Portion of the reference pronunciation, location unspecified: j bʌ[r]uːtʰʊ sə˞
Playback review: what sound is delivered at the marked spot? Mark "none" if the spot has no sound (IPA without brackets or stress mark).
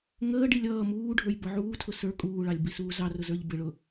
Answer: ʕ